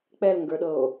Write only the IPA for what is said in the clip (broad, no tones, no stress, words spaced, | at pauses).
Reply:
k͡pɛlŋɡə˞ɗɤo̯